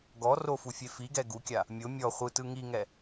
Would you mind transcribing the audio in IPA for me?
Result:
ɡɔ rofufʲe fiɡɛ ɡukʲa | mʲo mʲɔ χʷɯtɯ ŋiŋɛ

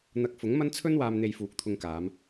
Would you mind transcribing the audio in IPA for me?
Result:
n̪ɐ˨˥k̚ fʊ˨˥ŋmɐ˥n t͡sʰɵ˥nwaː˧m n̪e˧jfuː˨˥k̚t̪ʰʊ˧ŋkaː˨˧m

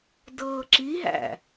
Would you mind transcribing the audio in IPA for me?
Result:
dɤːǁiɦæ̰

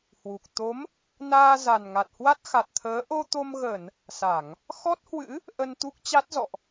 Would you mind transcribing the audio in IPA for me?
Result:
hwu˨˩k̚ t̪o˨˦m | naː˧za˨˩nŋa˨˩t̚hwa˦˥t̚ xa˨˩t̚t̪ʰəː˨˦ ʔo˧t̪o˧mɣə˧˩˨n | sa˧˩˨ŋ | xɔ˦˥t̚hwɨ̰˧˥ | ʔə˧nt̪u˦˥k̚t͡ɕa˦˥t̚zɔ̰˧˨ʔ

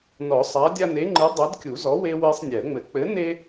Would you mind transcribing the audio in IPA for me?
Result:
nɔ˨˩˦sˤa˨˥ dʲa˦ne˨˥ŋ͡ǃɨ˨˥ dˤɐ˨˥d kʲu˨˩˦zɔ˨˥ we˦ we˦sˤnʲɛ˨˩˦ə̯ŋ͡mɘ˨˩˦ k͡pɘ˨˥ne˦

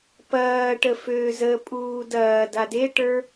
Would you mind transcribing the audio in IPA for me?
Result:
pɐːʈə føːzəpʼuː dɐː dadeʈə˞

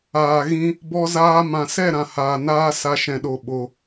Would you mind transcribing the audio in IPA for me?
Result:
aː˨ɣĩ˧ | bɔ˧zaː˧ mã˧ sɛ˦˨ɾã˨haː˨ naː˦ sa˧ ʃɛ̃˧ɗo˧ ɓo˧

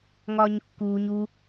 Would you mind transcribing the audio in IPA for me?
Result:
ŋɒːɲkːuːɲ u

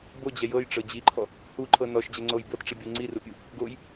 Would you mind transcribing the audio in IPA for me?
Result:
bod͡ʑɛ jɤjʈ͡ʂɤ d͡ʑiǃʰɔ | huǃʰɤ nɔʃd͡ʑɛŋ͡ǀoj bɤtʈ͡ʂibʲɤ ŋ͡ǀirupʲu | ɡoj

